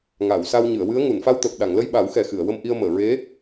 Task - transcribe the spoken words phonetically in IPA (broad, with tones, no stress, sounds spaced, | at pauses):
ŋ a˨˩˨ w s a˧ w ɲ ɨ˨˩˨ ə̯ w ɨ˧˥ ə̯ ŋ u˨˩˨ n f a˧ w t̪ əː˨˩ p̚ ɗ a˨˩˨ ŋ l ə˧ j ɓ a˨˩˦ w x ɛ˨˩ x ɨ˨˩˨ ə̯ w ə˧ m ʔ i˧ ə̯ m əː˨˩˨ ɹ e˧˥